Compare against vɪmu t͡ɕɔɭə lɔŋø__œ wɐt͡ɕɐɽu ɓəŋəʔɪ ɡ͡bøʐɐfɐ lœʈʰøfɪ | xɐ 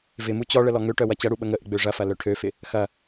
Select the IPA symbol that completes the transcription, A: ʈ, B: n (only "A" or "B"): A